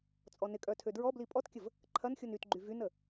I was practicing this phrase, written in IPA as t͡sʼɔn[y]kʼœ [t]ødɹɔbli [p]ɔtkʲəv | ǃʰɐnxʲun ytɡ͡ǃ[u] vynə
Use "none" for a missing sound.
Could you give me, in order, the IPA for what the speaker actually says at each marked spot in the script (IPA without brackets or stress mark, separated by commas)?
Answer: ɪ, tʰ, pʼ, y